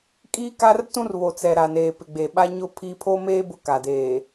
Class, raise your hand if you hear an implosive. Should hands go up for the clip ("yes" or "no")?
yes